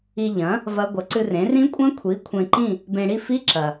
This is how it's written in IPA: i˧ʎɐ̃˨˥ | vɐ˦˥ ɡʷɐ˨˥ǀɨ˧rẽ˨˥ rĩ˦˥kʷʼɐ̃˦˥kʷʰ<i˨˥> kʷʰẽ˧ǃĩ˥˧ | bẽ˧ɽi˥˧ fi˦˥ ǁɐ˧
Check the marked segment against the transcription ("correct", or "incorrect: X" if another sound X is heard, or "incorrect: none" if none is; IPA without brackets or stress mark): correct